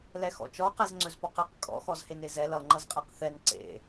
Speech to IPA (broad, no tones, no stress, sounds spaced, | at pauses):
l ɛ x ɔ̰ t͡ʃ ɔ q ɛ z ŋ͡ǀ ɵ z p ɔ q ɛ q kʼ ɔ̰ x ɔ z h e n e z ɛ l ʌ ŋ͡ǃ ʌ z qʼ e q θ ɛ n ǀ ḛ